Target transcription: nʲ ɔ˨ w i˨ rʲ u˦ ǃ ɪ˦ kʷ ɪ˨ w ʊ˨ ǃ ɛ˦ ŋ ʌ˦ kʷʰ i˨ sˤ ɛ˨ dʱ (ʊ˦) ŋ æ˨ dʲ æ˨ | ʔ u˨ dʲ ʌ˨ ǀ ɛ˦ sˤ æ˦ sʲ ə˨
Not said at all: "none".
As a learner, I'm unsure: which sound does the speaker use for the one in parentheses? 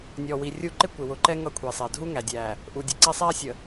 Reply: u˦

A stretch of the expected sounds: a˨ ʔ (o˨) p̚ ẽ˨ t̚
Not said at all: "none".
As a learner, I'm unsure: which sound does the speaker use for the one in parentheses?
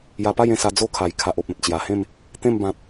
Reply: o˨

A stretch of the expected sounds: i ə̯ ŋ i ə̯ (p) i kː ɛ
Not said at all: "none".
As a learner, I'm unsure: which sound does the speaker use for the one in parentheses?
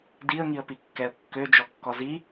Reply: p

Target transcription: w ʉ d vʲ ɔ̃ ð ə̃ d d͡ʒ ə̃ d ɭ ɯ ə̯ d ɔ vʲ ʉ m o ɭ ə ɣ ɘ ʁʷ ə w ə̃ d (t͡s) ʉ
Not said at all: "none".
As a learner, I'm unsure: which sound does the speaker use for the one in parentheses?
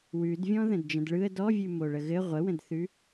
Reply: θ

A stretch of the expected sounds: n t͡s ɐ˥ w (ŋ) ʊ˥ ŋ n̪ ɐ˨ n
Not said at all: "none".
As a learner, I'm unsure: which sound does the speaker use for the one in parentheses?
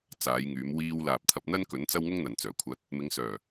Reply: ŋ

